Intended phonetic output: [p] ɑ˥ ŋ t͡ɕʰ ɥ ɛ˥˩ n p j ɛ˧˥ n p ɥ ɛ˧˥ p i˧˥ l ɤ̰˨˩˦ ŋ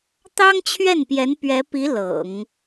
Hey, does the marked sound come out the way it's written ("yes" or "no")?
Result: no